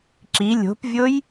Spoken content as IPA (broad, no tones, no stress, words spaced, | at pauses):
ǁi lʲo̤pvʲoj